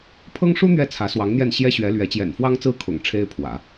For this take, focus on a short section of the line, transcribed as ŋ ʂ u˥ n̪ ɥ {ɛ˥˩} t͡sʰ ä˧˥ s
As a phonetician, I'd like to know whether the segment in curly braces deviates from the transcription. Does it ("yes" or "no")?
no